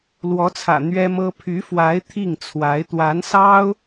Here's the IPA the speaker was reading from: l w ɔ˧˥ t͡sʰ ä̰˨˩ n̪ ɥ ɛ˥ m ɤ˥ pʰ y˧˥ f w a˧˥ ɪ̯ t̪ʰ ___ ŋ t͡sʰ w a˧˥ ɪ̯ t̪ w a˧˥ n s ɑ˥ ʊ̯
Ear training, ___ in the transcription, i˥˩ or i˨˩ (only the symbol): i˥˩